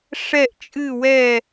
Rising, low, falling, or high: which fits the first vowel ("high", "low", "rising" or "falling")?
falling